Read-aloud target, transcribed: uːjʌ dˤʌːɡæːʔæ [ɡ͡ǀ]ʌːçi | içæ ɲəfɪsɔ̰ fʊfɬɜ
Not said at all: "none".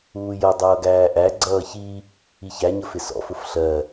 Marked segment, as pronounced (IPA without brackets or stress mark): ɡ͡ǀ